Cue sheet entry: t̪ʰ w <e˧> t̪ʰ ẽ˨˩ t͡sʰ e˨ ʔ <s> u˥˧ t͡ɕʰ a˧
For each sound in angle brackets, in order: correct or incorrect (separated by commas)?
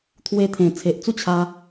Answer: correct, incorrect